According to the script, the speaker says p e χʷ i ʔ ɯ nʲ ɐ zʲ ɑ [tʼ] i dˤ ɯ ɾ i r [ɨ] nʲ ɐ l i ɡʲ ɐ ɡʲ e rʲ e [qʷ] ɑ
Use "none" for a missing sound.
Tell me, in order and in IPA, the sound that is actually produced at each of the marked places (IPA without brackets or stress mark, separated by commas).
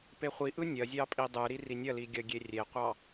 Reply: pʼ, i, qʷ